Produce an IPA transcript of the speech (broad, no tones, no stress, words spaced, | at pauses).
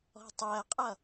ɔ̤tˤɜqʼʌ